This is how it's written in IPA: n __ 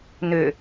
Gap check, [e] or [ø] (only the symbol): ø